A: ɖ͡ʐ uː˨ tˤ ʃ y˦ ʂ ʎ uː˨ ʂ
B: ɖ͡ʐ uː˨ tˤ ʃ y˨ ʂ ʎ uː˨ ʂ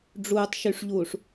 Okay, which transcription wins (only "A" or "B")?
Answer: B